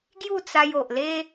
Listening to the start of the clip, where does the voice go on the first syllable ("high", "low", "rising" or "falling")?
falling